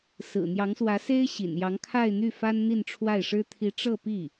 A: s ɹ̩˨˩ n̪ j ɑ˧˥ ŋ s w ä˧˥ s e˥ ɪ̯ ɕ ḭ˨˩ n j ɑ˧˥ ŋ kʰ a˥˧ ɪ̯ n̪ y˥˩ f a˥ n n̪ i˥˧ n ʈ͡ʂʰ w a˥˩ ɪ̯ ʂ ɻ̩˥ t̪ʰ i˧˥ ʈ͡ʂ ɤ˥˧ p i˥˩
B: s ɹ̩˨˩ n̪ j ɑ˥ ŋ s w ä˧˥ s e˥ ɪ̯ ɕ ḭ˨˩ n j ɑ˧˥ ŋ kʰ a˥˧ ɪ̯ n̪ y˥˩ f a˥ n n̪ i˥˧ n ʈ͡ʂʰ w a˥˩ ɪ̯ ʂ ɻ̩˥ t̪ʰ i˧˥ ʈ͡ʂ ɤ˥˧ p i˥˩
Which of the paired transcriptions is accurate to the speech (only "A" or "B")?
A